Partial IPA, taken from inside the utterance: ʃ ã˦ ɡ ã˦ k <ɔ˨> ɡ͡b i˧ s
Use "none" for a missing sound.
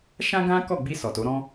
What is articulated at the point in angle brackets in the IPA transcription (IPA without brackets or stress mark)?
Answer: ɔ˦˨